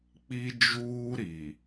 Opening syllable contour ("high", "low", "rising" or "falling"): high